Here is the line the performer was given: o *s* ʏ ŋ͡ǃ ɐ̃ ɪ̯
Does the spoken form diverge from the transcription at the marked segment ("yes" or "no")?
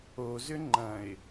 yes